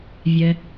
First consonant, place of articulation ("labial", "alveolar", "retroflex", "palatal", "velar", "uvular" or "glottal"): labial